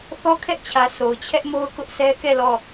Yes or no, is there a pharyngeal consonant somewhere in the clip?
no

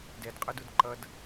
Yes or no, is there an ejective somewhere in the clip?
yes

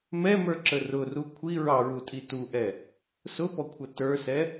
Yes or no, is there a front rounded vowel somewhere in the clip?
no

